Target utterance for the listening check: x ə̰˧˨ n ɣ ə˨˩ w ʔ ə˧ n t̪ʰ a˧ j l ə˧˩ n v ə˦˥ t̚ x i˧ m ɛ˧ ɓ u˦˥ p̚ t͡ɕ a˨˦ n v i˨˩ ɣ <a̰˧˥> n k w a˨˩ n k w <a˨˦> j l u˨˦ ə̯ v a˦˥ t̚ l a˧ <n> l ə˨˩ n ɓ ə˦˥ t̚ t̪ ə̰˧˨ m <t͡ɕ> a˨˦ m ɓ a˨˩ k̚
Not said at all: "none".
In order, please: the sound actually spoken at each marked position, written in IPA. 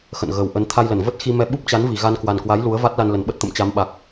a˧, a˨˦, n, t͡ɕ

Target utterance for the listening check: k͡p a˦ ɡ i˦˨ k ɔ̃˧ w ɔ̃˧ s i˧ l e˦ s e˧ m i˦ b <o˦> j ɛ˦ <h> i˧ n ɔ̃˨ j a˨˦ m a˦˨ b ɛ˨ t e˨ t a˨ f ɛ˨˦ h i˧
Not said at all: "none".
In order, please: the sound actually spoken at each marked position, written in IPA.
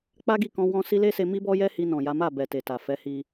ɔ˦, h

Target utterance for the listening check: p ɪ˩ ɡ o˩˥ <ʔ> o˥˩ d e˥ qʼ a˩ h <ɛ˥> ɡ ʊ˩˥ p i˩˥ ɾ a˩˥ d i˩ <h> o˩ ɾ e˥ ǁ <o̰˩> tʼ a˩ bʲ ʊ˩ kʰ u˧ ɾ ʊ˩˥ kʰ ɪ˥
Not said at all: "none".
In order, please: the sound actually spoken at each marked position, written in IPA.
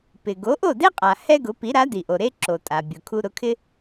ʔ, ɛ˥, ʔ, o˩

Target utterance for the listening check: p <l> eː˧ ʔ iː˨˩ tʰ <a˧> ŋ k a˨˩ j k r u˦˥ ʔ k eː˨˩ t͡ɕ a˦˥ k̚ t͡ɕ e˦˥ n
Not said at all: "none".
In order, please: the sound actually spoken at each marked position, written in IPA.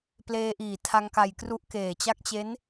l, a˧

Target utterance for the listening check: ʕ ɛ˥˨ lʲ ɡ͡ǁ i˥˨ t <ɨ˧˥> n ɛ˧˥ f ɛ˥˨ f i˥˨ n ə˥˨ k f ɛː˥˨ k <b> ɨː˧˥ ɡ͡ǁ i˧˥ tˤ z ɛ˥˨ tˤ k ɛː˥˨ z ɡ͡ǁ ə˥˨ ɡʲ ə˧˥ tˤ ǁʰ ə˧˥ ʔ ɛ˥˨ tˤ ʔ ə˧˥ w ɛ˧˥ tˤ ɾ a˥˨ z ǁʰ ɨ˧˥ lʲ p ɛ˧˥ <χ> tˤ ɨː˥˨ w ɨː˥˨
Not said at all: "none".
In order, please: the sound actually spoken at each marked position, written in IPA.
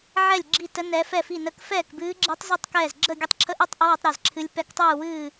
ə˧˥, b, k

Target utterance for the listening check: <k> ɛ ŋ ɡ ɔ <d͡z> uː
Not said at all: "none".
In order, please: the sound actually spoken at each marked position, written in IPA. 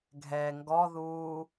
ɡʱ, ð

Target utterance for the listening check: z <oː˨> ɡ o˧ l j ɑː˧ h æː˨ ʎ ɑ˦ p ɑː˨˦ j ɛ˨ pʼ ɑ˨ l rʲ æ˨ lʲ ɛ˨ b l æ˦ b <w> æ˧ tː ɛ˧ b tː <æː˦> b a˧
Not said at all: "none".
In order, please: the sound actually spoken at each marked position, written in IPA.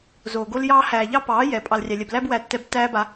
oː˨, w, æː˦

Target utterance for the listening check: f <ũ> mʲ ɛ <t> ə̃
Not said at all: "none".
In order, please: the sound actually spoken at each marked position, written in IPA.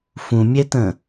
ũ, t

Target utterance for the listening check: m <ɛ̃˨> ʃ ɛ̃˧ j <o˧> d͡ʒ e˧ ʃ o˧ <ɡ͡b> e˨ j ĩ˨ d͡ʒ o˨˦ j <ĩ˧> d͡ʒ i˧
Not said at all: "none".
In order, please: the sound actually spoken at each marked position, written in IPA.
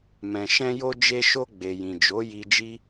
ɛ̃˨, o˧, ɡ͡b, i˧

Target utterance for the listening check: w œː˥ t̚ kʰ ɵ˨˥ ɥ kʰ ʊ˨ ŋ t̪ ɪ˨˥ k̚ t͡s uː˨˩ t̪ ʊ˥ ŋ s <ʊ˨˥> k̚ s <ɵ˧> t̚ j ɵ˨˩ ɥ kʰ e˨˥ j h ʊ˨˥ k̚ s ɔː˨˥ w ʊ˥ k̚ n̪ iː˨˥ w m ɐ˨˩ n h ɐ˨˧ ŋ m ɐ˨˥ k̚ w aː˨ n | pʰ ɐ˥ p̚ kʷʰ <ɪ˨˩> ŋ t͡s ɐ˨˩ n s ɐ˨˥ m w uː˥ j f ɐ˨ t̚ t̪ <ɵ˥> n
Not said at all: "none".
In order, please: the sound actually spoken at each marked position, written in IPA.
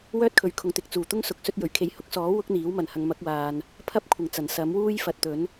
ʊ˨˥, ɵ˧, ɪ˨˩, ɵ˨˥

